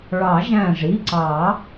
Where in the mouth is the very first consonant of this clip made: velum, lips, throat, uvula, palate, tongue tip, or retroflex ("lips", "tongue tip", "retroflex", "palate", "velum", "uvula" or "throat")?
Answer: retroflex